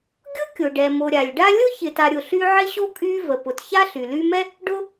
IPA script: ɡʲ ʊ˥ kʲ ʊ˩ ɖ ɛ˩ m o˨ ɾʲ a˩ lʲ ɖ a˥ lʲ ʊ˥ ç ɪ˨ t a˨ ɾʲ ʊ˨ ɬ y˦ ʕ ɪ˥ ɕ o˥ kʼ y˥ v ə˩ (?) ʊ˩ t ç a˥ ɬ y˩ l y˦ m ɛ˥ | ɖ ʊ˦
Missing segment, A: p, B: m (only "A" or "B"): A